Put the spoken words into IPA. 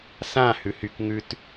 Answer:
s ã h ʉ h y k ŋ ʉ t

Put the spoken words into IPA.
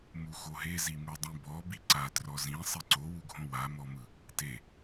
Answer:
m u x o ɦ e z i m u dˤ ĩ b ɔ b i ǀ a t r ɔ z ĩ sˤ i ǀ o w u ɡʱ õ w a m ɔ m ɯ | t e

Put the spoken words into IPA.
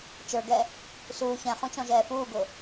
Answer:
t͡ʃ ə˞ ɡ ɛ | s uː ç ɛ̃ χ ũ t͡ʃ ɔ̃ ʒ ɛː f uː ɡ ʊ

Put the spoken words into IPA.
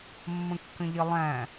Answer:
mː ə̃ kː ə̃ ʎ ɪ lˠ æ̃

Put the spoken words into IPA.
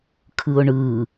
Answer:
kʰ ɯ ʊ̯ ɳ ɯ

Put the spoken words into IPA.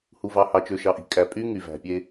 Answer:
h u˨ v ɑ˨ h ɑ˨ t͡ʃ ø˨ ʃ ɑ˨ ʔ i̤˨ kʼ æ˨ pʼ y˦ ŋ y˨ v æ̤˨ pʲ e˦

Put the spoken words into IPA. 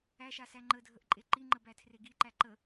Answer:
æ ʃ a s æ ŋ͡ǃ ə dʱ ə ʔ ǃʼ e ǃ i ŋ͡ǃ ə b æ tʰ r e ɡ i ǃ æ ǃ ə

